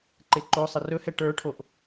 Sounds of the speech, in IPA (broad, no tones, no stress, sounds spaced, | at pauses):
ǃ e ǃ o sˤ ə r ɵ h ɛ ʈ ə˞ ʈʰ o ʔ